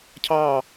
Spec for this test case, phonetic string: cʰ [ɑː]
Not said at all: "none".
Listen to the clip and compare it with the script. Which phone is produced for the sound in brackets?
ɑː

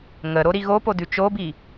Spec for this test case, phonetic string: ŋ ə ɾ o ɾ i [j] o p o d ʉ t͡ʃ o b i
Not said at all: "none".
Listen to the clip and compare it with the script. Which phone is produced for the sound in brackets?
ɣ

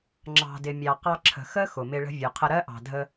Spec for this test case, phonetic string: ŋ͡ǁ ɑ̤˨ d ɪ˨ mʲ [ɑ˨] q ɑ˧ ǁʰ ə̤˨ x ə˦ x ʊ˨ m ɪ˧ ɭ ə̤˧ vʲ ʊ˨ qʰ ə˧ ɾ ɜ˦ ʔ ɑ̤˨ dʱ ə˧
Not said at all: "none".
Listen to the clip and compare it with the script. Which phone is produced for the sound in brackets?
ɑ˨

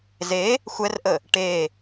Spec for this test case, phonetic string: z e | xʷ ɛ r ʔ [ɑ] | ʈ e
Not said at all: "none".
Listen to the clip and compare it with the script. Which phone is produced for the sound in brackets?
ə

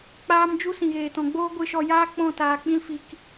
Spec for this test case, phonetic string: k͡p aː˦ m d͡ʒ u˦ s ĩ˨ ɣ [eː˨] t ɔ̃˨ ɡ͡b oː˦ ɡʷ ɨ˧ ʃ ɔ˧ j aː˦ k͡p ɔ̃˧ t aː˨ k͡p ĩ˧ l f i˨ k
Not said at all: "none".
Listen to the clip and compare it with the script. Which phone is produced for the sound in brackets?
eː˨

